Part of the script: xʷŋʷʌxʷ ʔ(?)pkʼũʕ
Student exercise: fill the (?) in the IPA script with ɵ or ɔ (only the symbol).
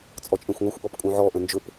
ɔ